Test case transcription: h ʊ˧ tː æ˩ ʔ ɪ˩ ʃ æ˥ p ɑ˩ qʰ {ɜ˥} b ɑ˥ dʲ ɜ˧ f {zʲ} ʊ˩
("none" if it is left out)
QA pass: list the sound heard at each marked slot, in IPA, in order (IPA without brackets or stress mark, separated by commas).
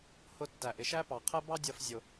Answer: ɜ˥, zʲ